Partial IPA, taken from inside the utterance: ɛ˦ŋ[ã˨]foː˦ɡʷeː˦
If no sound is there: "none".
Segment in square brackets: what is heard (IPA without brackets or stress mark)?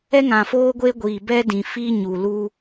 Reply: ã˨